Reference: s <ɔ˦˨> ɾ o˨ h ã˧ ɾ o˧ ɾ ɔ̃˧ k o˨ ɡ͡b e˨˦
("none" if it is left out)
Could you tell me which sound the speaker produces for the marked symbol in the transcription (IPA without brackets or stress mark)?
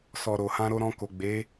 ɔ˨